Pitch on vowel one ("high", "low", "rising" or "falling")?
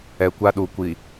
low